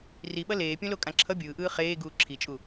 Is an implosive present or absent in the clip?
present